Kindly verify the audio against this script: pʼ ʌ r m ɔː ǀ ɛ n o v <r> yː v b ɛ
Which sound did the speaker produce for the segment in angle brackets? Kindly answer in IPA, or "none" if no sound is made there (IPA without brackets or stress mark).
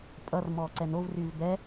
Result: r